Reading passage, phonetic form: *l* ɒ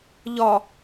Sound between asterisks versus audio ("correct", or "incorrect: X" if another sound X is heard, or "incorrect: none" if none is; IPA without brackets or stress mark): incorrect: ʎ